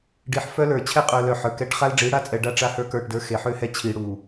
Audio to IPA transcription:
ɖi˨ħfœ˦lə˞˨ t͡ɕʰɛ˦qʼœ˨lœ˨ ħə˞˨kɛ˦ʈ χa˦lɖ͡ʐi˨˦ɽa˦˨t͡sʼɛ˨ ɖa˦ ʈ͡ʂa˦hə˞˦ kə˞˦˨ʈdə˞˦ xe˨ħø˦hɛ˦ t͡ɕʰi˨ɽu˨

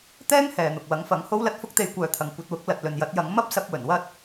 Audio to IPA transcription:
t̪ɛː˥ŋ hɛː˨n̪ʊ˨k̚ wɐ˨˥ŋfɐ˨˥ŋ ho˥wlɐ˥t̚ fʊ˥k̚t̪e˧jkʷœː˨˧t̪ʰɐ˨ŋ kʷɐ˧t̚wʊ˨˥k̚ lɐ˨t̚lɵ˨njɐ˨˥t̚jɐ˨˥ŋ mɐ˥p̚sɐ˧p̚ wɵ˨˩nwɐ˥t̚

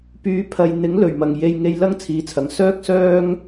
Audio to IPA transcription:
pyː˨˥pʰɐ˨j n̪ɪ˨˥ŋlɵ˨˩ɥmɐ˨˩ŋ je˧jŋe˧j lɐ˥ŋt͡sʰiː˨˧t͡sʰɐ˨ŋ sœː˥k̚sœː˥ŋ

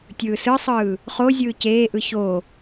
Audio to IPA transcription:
tʲɯːsɯsˤɯː | χo zʲɯːceːʔɯ ço

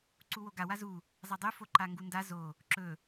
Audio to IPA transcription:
ǀuwoɡa wazu | zˤadˤʉ foǃaŋɡunda zo | ǁɵ

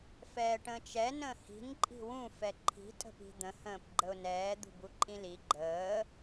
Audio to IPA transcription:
fɛːʈə̃ːt͡ʃɛ nə̃ːhi̤n ǃʼi̤wũ fɛǃʰi̤ tʼə̤pi̤d̪ə̃ hə̃ːpɡ͡ǃəʊ̯nɛː d̪ṳbuǃʼĩli ɡ͡ǃəː

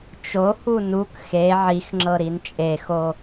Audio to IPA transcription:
t͡ʃohu nuk xe ʕixŋ͡ǁɤ ɾint͡ʃʼexo

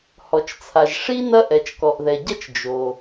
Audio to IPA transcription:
hɔ˩t͡ʃt͡sʰa˩ʒ ʂi˥ nɐ˥ ʔɛ˩t͡ʃkɔ˩ʔðɛ˩ɟɐ˥t͡ʃ d͡ʒo˩

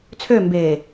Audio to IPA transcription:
t͡sʰømbeː

